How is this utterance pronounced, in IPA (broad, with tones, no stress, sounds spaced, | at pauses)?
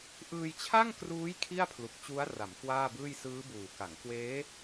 ʔ ɯː˧ j t͡ɕʰ a˥˩ ŋ k r uː˦˥ j kʰ i˥˩ a̯ pʰ l u˨˩ k̚ t͡ɕ u˦˥ a̯ r a˩˦ m k w aː˥˩ b ɯː˥˩ j s ɯː˦˥ b uː˨˩ k a˩˦ ŋ k w eː˦˥